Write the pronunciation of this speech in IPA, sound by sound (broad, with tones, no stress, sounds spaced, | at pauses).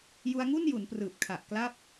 j u˧ a̯ ŋ u˥˩ n j u˩˦ n p r ɯː˨˩ p̚ kʰ a˨˩ ʔ k l a˦˥ p̚